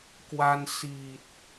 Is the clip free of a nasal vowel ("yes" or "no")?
yes